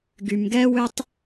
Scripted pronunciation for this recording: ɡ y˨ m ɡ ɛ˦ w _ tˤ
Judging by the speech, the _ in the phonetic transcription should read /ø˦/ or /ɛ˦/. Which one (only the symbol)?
ø˦